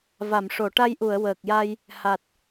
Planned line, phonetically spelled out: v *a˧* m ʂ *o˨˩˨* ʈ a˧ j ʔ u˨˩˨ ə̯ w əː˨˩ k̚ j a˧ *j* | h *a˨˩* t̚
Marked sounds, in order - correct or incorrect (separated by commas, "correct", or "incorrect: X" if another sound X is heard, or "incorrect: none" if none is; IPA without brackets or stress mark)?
incorrect: a˨˩˨, correct, correct, correct